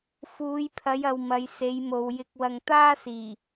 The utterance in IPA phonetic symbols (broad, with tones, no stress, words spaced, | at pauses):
fuː˨˧jpʰɐ˨˧jɐ˨w mɐ˨˧jse˨˧jmo˨w jɪ˧k̚ wɐ˨ŋt̪aː˥ siː˨˩